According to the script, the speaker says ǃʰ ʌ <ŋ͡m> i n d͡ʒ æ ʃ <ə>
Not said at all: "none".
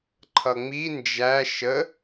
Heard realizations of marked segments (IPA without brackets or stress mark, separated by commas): ŋ͡m, ə